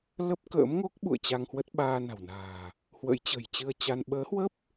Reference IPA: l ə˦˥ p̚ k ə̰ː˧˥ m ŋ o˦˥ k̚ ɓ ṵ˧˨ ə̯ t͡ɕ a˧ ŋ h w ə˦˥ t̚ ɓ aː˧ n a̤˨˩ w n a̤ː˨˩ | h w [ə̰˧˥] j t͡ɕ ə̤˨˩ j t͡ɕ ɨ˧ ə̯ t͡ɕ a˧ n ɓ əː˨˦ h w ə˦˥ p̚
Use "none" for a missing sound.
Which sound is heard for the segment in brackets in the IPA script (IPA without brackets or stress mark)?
ə̰˧˥